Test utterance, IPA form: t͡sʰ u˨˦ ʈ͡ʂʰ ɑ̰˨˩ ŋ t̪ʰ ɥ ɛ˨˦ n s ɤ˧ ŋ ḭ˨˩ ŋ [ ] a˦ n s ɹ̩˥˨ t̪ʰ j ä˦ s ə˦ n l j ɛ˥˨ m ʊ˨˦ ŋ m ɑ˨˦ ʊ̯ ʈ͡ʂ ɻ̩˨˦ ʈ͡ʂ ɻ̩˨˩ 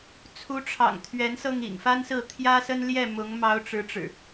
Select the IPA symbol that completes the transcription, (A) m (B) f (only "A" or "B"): B